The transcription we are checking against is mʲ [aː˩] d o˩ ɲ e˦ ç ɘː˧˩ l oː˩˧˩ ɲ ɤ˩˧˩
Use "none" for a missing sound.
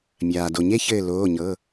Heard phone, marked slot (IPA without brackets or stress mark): aː˩